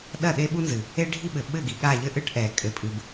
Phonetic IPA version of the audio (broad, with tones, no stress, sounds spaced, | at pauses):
ɗ ɐ˦˨ ɗ e˦ ɓ u˦ n z ɨ˨ | e˦ ɖʱ i˦ ɓ ɘ˨ ɓ ɘ˦˨ ɡ i˨ ɠ a˦˨ ʎ ɘ˦ ʔ ɨ˦ ʈ ʔ ɛ˨ kʼ ɘ˨ pʼ ɨ˨ b